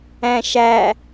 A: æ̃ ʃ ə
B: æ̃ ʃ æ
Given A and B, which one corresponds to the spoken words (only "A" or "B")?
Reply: B